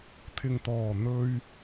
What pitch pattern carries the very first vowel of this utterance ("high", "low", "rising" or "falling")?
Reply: low